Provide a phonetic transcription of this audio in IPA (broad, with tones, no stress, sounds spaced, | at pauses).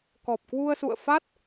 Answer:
k ɔ˨˩ p̚ k w u˧ ə̯ s ṵ˧˨ ə̯ f a˦˥ t̚